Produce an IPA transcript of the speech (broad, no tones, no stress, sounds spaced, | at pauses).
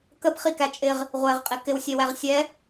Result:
k ə p χ i k æ t͡ʃʼ ɪ ʁ | ʁʷ ɛ ʁ qʼ ɪ k ɪ w sʲ ɛ w æ ʁ sʲ ɛ